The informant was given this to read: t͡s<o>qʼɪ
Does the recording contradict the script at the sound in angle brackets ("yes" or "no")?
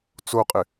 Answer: no